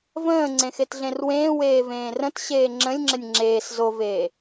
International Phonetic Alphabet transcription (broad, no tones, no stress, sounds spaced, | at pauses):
v ə̃ː ŋ͡ǀ ẽ x e t ɮ ẽ r w ẽː w eː v ẽː r ə̃ t ɕ eː ŋ͡ǁ ə̃ lʲ ŋ͡ǁ ə nʲ ŋ͡ǁ eː s z o v eː